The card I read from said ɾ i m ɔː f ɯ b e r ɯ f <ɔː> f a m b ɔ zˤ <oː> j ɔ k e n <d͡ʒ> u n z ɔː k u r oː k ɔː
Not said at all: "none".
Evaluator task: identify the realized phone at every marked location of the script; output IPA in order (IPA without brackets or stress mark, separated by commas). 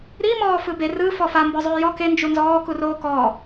ɔ, oː, d͡ʒ